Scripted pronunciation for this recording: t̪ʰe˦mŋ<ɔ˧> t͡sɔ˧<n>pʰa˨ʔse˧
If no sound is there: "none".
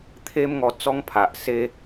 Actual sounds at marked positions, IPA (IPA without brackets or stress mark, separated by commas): ɔ˧, ŋ